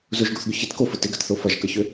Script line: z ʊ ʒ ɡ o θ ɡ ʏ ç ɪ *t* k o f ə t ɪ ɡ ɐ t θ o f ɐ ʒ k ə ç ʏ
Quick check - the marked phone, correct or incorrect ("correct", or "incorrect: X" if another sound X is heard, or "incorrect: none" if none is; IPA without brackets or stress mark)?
correct